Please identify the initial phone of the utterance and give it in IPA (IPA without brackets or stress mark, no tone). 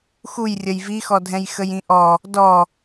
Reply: x